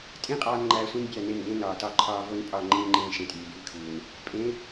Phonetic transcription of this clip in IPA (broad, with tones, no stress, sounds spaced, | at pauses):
tʼ ĩ˦ qʼ ɒː˧ n ŋ͡ǃ æː˧ sʷ ĩ˦ n bʲ æ˦˨ n e˦˨ n ɡ ẽ˦ n ɒː˨ t ɒ˧ ǃʰ ɒː˧ v o˦ n pʼ ɒ˦˨ ŋ͡ǃ ĩː˦ ŋ͡ǃ ĩː˧ ʃ ẽ˨ tʼ iː˨ b iː˧ kʰ uː˨ n | pʼ ẽ˨˦